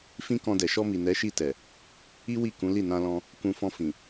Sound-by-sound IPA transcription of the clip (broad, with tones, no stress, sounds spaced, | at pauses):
f ĩ˦ k ɔ̃˧ d ɛ˨ ʃ ɔ˧ m i˨ n ɛ˨˦ ʃ i˦˨ t ɛ˨ | i˦ w i˦˨ k ũ˨˦ l i˦˨ n ã˧ l ɔ̃˧ | k ũ˧ f ɔ̃˧ f ĩ˨